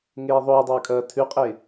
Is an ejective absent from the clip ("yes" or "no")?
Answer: no